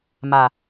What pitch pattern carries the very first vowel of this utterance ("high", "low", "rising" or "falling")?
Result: low